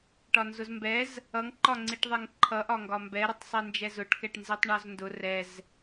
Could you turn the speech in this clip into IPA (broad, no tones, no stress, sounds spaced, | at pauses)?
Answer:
ʈ ɒ n z ʊ z m b ɛ z | ʌ ŋ ǃ ɒ ŋ͡ǀ i ʈ ðˤ ɛ ŋ ǃʰ ʌ ʔ ɒ ŋ ɡ ɒ m b ɛ ɾ ʊ tˤ sˤ i n d͡ʒ ɛ z ʊ ʈ k ɛ ʈ n z i tˤ ɳ ɒ z n d ʊ r ɛ z